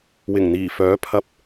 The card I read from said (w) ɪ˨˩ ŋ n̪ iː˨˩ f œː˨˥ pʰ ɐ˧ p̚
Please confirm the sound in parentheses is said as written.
yes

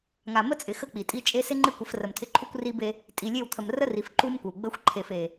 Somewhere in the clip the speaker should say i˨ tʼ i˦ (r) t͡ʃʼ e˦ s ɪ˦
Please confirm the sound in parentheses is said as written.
no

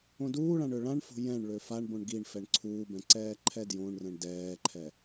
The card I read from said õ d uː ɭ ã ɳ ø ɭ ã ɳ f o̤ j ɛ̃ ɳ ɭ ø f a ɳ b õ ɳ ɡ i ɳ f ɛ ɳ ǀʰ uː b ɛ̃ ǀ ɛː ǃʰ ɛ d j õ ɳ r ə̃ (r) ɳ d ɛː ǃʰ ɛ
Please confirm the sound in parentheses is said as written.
no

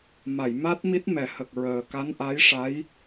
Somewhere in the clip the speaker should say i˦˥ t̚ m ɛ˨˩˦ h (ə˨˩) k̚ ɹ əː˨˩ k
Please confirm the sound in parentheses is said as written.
yes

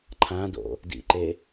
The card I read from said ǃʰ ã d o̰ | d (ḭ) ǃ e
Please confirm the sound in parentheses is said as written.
yes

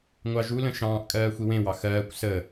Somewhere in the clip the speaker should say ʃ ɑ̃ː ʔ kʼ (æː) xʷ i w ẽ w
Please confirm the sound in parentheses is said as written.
no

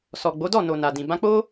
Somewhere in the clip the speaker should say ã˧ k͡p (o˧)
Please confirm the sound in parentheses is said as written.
no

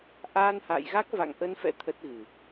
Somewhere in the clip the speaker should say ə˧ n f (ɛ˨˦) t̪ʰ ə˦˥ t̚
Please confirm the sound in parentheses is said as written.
no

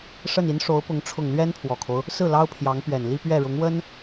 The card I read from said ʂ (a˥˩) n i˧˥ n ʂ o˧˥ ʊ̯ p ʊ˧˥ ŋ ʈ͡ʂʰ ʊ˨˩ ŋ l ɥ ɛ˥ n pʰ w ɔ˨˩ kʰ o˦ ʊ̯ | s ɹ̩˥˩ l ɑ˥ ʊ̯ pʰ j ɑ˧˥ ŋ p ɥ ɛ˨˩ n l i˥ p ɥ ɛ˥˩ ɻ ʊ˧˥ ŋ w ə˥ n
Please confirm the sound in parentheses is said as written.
no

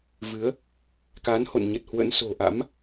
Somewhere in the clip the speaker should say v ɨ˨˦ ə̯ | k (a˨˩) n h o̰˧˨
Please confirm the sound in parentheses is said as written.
no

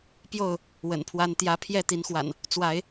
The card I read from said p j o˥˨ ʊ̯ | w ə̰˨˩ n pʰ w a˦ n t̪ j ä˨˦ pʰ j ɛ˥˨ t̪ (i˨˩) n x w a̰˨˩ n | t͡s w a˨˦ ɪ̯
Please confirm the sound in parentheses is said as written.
no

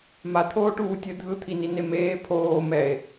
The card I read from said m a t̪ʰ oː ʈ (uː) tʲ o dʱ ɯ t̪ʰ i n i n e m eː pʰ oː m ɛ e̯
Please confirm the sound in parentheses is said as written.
yes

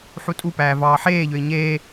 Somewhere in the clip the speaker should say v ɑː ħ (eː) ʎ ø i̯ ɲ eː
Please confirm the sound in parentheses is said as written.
yes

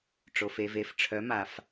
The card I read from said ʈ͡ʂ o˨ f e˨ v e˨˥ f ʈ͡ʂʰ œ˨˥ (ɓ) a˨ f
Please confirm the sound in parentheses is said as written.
no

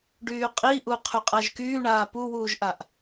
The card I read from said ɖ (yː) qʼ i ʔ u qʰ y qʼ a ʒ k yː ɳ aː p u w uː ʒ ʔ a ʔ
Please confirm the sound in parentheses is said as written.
yes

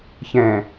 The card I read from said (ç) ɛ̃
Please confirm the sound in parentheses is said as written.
yes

